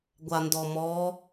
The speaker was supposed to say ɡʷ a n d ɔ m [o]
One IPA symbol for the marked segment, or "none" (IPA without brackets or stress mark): ɔ